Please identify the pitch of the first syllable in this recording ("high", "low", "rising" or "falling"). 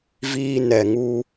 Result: high